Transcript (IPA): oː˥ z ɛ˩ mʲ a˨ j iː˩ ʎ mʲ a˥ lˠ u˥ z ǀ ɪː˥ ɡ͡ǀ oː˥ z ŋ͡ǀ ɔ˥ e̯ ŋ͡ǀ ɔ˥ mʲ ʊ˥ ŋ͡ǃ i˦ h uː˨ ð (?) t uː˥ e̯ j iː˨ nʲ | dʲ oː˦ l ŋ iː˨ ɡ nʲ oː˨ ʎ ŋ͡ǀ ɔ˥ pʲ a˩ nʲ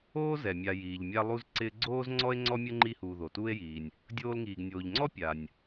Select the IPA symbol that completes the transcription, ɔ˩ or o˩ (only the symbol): o˩